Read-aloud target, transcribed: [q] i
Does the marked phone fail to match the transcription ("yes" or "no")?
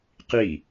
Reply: no